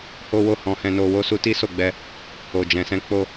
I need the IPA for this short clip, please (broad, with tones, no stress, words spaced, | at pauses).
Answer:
ho˦wo˦˨ hɔ̃˧hɛ̃˧no˧ wo˧su˧ti˦ so˦˨ɡ͡bɛ˧ | o˨d͡ʒɛ̃˨sɛ̃˧ k͡po˧